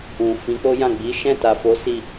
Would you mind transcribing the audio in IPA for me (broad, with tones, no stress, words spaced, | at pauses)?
ũ˨fĩ˨˦ k͡po˦jã˦˨ ɡ͡bi˨˦ʃɛ̃˦˨ta˨fo˨˦ si˦˨